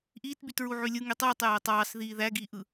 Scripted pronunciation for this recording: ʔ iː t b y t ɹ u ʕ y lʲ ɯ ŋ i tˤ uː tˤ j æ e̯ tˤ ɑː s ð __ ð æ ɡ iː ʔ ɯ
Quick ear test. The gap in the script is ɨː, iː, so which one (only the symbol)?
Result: iː